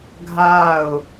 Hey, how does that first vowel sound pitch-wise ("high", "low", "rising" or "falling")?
falling